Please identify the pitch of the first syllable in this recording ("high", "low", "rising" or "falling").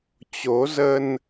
rising